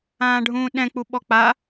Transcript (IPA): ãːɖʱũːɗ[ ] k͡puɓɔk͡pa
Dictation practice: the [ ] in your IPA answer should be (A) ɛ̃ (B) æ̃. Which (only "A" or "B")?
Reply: A